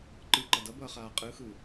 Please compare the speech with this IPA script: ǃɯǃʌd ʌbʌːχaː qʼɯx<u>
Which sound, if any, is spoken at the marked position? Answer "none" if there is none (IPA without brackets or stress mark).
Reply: ɯ